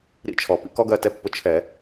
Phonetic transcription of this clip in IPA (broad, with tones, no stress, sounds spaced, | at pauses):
ɾ ḭ˦ t͡ʃʰ ɔ˩ p ḭ˨˦ k ɔ˦ ɡ ɜ˦˨ t ɛ˦ pː ʊ˦ t͡ʃʰ ɛ˧˩˧